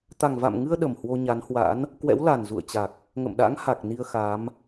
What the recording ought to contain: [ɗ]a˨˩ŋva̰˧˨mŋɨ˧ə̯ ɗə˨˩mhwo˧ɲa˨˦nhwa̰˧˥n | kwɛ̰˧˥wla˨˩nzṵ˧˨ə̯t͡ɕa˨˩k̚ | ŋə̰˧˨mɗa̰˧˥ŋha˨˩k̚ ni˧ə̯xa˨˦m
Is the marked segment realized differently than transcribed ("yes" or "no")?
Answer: yes